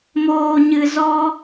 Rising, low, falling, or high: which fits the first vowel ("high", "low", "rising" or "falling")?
low